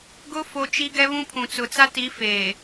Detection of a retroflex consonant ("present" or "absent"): absent